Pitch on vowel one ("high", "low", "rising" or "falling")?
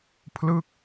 falling